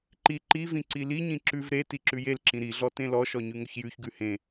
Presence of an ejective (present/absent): absent